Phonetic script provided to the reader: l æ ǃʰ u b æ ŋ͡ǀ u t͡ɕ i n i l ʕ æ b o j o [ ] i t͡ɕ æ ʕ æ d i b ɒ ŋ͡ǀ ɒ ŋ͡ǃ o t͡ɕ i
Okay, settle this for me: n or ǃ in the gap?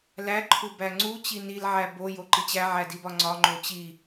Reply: ǃ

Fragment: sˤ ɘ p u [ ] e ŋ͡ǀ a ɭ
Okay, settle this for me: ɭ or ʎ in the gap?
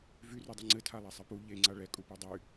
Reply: ʎ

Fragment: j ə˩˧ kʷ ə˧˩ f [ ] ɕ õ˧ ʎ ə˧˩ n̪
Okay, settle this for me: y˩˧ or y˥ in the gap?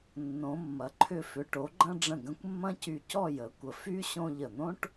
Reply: y˥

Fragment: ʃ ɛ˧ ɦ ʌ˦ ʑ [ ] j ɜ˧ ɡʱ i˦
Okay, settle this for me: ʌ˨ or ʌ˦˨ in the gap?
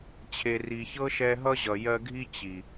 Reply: ʌ˨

